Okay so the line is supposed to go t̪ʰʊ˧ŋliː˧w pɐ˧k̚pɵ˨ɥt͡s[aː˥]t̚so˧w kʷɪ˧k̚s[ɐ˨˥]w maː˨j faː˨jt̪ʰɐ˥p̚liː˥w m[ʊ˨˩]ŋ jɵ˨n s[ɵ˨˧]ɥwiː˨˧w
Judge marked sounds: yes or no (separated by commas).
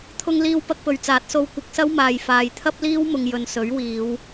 no, no, no, no